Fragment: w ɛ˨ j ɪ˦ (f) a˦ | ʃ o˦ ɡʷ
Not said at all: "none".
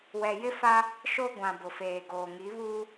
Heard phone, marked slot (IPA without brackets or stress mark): f